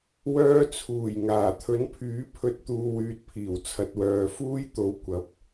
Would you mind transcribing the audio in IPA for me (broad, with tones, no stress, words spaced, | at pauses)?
wœː˧t͡sʰuː˨˩j ŋaː˨˩t̪ʰɵ˨˥npʰyː˨˥ pʰɵ˧t̚ t̪uː˨wyː˨t̚pʰiː˨˩w t͡sʰɐ˨t̚wœː˨ fuː˥j t̪o˨˥w kʷɐ˨˥p̚